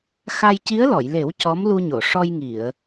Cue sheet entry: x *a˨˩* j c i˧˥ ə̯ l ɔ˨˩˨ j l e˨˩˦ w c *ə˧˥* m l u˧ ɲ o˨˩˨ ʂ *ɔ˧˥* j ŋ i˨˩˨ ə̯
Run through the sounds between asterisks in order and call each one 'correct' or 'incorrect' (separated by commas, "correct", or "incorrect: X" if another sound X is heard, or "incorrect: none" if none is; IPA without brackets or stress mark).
incorrect: a˧, incorrect: ɔ˧˥, incorrect: ɔ˧